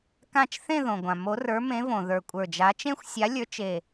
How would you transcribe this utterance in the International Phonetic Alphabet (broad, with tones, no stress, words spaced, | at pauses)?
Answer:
kã˥˧t͡ʃ θẽ˥˧ðõ˩ɡʷã˩ mo˨˥rə˞˨˥mẽ˨˥võ˩ ðə˞˧˩kʷʼə˞˧˩d͡ʒa˨˥ t͡ʃẽ˥˧xʷsʲa˨˥lʲə˞˨˥t͡ʃ e˧˩